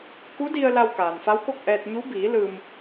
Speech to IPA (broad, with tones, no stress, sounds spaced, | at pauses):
k u˧˥ d i˧ ə̯ l a˧ w k aː˩ n f a˧˥ w k o˥˨ k̚ ʔ ɛː˧ t̚ ɲ u˧˥ b iː˩˧ l ɯː˧ m